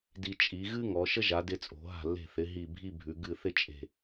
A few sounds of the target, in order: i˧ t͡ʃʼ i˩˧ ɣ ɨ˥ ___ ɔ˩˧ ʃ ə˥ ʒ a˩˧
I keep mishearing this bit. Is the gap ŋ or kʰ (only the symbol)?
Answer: ŋ